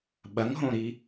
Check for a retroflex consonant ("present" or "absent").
absent